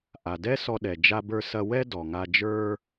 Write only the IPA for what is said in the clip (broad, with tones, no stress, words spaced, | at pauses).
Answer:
ʔa˩dɛ˥ sɔ˧ɗɛ˩ d͡ʒa˧bə˞˧sɐ˧wɛ˥ dɔ˩ŋa˧ d͡ʒə˞˥